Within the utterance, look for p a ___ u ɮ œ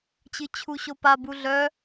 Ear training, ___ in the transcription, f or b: b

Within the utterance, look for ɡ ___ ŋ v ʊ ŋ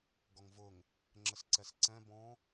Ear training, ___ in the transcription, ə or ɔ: ɔ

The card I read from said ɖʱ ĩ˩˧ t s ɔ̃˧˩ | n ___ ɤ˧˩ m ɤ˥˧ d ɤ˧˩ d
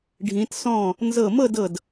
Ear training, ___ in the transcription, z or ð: z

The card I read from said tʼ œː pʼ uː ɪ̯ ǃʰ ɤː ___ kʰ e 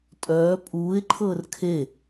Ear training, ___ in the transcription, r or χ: r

